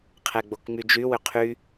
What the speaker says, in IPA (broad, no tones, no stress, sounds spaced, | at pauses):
qʰ ɛ ɡ͡b o k ŋ͡m y d͡ʒ y w ʏ qʰ y